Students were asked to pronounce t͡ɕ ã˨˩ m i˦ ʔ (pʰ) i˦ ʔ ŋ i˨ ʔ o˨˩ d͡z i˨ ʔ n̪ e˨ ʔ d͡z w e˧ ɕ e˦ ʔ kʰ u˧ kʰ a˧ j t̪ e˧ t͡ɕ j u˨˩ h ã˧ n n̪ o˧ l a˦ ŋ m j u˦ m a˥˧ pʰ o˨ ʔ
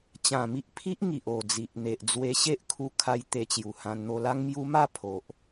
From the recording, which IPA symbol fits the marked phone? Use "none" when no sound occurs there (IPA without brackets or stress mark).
pʰ